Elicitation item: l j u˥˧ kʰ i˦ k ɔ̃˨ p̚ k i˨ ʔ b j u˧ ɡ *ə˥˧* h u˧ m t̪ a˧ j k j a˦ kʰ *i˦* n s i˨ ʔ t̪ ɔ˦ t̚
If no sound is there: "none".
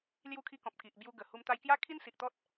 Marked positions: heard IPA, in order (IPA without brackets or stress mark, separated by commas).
ə˨˩, i˦